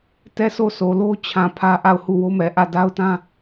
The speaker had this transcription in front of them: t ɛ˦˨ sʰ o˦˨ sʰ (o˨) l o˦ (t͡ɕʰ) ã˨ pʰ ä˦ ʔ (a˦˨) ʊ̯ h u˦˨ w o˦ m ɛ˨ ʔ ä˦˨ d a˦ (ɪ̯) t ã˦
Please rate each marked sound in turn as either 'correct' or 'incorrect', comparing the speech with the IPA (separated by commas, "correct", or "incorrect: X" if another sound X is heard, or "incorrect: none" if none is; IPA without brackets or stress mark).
correct, correct, correct, incorrect: ʊ̯